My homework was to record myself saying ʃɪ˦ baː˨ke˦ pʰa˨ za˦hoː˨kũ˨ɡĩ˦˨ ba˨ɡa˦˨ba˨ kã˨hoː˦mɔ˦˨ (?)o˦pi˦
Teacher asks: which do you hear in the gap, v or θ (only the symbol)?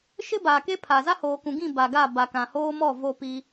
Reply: v